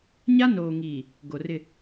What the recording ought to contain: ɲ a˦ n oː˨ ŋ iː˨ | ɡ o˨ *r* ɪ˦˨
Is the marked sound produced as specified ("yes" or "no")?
yes